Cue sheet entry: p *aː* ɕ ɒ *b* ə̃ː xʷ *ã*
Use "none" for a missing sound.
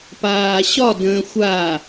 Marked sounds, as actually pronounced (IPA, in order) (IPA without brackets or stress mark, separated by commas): aː, d, a